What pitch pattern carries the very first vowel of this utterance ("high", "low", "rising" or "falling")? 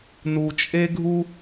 low